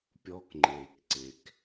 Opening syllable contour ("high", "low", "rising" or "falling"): high